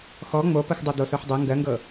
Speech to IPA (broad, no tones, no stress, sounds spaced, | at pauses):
x ɔ ŋ͡m o p ə x dˤ ɤ d̪ o s o ħ dˤ ɤ ŋ ɡ ɜ ŋ ɡ ɤ